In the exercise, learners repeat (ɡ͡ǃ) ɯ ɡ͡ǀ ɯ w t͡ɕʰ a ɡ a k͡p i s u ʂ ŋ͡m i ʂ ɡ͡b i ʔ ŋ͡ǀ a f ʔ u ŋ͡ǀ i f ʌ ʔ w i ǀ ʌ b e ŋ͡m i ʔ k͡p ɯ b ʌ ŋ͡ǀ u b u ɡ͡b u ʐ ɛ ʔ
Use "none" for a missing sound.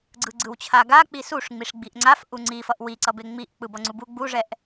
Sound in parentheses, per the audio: ɡ͡ǀ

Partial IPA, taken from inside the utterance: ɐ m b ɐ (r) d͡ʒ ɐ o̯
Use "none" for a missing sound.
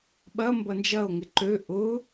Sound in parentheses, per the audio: n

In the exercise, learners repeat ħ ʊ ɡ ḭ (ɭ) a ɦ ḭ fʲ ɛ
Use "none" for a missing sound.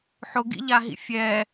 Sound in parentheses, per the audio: ʎ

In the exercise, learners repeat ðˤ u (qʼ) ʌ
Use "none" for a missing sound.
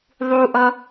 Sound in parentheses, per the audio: ʔ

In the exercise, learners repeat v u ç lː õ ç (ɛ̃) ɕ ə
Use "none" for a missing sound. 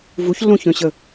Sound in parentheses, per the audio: œ̃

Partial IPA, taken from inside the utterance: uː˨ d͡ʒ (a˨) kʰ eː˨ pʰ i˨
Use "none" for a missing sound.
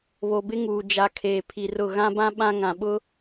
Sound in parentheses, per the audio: a˨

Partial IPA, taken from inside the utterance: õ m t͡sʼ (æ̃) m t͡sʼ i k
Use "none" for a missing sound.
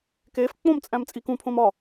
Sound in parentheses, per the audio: æ̃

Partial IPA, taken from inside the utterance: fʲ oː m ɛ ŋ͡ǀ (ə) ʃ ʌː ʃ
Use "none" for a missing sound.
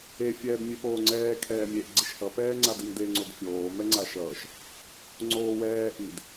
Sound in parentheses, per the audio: a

